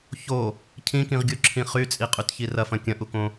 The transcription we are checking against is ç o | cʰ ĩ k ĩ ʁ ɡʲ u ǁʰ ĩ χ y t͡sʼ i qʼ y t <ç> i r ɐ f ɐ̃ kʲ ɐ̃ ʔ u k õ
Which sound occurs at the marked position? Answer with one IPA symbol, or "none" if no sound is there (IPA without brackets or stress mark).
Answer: ç